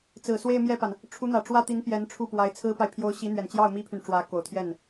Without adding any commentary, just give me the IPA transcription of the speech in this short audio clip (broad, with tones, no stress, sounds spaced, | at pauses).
t͡s ɹ̩˨˩ s w e˥˧ ɪ̯ m j ɛ˥˩ p a˩ n | ʈ͡ʂʰ u˧˥ n̪ ä˨˩ ʈ͡ʂ w ä˥˩ t̪ i˧˥ n p j ɛ˧˥ n ʈ͡ʂʰ u˥˩ p w a˧˥ ɪ̯ t͡sʰ ɹ̩˥ p a˨ ɪ̯ pʰ j o˧˥ ʊ̯ ɕ i˧˥ n̪ ɥ ɛ˨˩ n t͡ɕ j ɑ˥˩ ʊ̯ m i˥ pʰ y˨ n ʈ͡ʂ w ä˧˥ k o˨˩ ʊ̯ t̪ʰ j ɛ˥˩ n